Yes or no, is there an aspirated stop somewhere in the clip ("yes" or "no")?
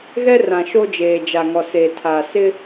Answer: yes